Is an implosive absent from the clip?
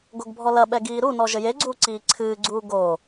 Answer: no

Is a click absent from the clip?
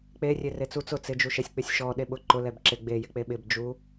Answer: no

